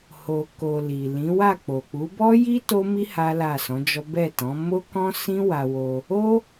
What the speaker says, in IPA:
h o˨ k o˨ l i˨ l ĩ˨˦ w a˦˨ k͡p o˨ k͡p u˨˦ b ɔ˦ j i˦ t o˦ m i˦ h a˦ l a˦˨ s ɔ̃˨˦ d͡ʒ ɔ˦ b ɛ˦˨ t ɔ̃˨˦ m o˦ k ɔ̃˦ s ĩ˦ w a˧ w o˧ | o˦

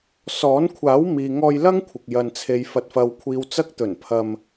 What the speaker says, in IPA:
s ɔː˨˥ n kʷʰ aː˨˥ w m iː˨ ŋ ɔː˧ j l ɐ˥ ŋ kʷʰ ɪ˨ k̚ j ɐ˨ n t͡sʰ e˨ j f ɐ˨ t̚ f ɐ˨ w kʷʰ iː˨ w t͡s ɐ˧ k̚ t̪ ɵ˨˩ n pʰ ɐ˧ m

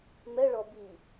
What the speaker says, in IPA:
m ɛ ɭ ɔ b i

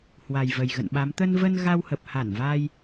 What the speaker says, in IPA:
h w a˨˩ j v ə˨˩ j ɣ ə̰˧˨ n ɓ a˨˦ m t̪ ə˧ n v ə˧ n ɣ a˧ w h ə˨˩ p̚ h a˧˩ n v a˧ j

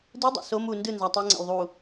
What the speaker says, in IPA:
d ɯ dˤ a̰ s o m u n d ɯ n z a tˤ u ŋ͡ǀ a̰ l ðˤ u

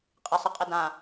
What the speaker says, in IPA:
qʼ ɪ sˤ ɪ qʼ ɪ d ã

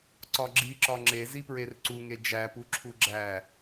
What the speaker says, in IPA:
ǀ ɒ ɡ͡ǁ i ǁ ɒ ŋ͡ǁ e z i p ɹ e r ǀ u ŋ e d͡ʒ æ p u ǁʰ u ɡ͡ǁ æ

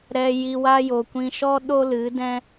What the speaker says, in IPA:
ɾ ɛ˧ j i˧ w a˦ j o˨ kʷ ĩ˧ ʃ ɔ˦ ɗ o˦ l ɨ˨˦ d ɛ̃˦

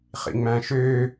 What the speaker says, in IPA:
χ ḭ ŋ͡m æ̃ ʃ ø

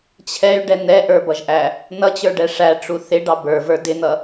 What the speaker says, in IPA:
t͡ɕʰ ɛ y̯ ɖ ɛ n̪ ɛ ʔ ə˞ b ʌ ʒ ʔ æ | n ʌ t͡ɕ ə˞ ɖ ɛ ʂ æ ʈ͡ʂ u θ ɪ ɖ ɑ b ə˞ v ə˞ d ɪ n̪ ʌ

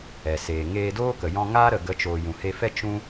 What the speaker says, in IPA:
ɛ˨ s eː˨ ŋ eː˧ d oː˦ k ə˨ j ɔ̃˧ ŋ aː˦ ɾ ə˨ ɡ ə˨˦ t͡ʃ oː˨ j ũ˨ h e˧ f ɛ˦ t͡ʃ ũ˦

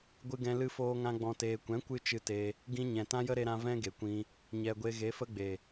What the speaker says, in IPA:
ɡʷ ɨ˧ ɡ ɛ̃˧ l ɨ˧ f oː˧ ŋ ã˧ ɡ͡b ɔ̃˨ t eː˨ kʷ ɛ̃˨˦ kʷ ɨ˦ t͡ʃ ɨ˧ t e˧ | ɡ ĩ˧ ɲ ɛ̃˨ t ã˦ j ə˦ ɾ e˧ ɾ ã˧ v ɛ̃˦ ɡ e˨ kʷ ĩ˧ | ɲ ɛ˨ ɡʷ e˧ ɣ e˨˦ f ə˦ ɡ͡b e˨

